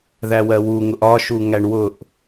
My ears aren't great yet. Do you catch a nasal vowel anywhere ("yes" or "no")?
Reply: no